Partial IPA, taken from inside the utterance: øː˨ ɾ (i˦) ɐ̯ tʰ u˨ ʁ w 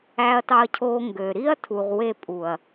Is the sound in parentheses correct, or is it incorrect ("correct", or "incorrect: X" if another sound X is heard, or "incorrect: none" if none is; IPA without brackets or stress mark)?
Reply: correct